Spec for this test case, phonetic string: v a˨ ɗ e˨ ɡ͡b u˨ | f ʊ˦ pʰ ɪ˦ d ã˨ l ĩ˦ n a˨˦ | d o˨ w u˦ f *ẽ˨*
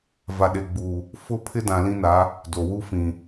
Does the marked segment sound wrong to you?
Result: yes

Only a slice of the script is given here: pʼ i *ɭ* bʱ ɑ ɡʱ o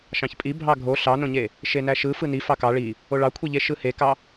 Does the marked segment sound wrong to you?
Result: yes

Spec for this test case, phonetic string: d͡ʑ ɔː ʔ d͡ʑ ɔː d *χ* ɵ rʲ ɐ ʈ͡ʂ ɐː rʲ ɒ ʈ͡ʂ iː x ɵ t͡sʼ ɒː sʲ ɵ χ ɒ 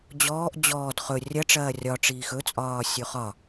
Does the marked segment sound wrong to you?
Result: no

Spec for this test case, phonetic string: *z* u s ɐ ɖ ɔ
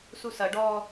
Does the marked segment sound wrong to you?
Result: yes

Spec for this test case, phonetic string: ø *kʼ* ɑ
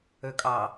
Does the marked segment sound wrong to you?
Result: no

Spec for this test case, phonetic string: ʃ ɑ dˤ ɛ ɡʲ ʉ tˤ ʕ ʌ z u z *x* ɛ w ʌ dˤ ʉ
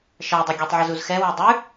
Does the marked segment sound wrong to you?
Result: no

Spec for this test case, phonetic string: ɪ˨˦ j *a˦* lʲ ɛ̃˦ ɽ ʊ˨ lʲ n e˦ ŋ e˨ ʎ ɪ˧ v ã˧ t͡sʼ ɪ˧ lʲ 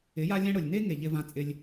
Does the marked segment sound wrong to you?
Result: no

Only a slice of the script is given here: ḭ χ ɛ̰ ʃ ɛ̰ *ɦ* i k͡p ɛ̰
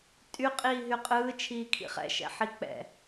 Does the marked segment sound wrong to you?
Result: yes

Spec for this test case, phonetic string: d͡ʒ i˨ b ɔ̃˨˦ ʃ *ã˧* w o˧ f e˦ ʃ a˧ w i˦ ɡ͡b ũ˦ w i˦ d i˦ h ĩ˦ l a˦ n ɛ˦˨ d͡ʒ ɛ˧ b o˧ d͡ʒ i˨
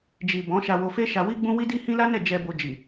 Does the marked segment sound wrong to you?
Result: yes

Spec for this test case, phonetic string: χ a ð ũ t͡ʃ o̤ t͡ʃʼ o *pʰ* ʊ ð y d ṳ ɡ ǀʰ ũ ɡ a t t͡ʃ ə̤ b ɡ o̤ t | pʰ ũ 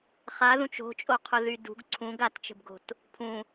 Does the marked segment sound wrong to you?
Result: yes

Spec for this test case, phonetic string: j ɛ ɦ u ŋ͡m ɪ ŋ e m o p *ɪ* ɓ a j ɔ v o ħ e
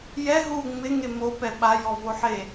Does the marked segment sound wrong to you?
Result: yes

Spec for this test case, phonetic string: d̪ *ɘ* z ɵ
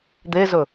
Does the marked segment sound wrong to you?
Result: yes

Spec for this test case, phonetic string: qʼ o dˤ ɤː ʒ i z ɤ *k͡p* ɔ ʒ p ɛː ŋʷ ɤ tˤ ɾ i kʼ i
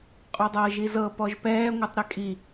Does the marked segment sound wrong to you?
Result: yes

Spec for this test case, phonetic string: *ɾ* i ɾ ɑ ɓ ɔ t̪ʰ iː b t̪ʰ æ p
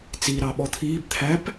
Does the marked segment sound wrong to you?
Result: yes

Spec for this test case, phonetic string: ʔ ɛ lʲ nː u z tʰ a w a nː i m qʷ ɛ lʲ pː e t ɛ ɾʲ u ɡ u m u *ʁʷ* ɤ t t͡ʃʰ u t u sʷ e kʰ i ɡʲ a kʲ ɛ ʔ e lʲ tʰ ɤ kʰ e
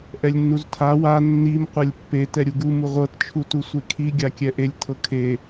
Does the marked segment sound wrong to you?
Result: no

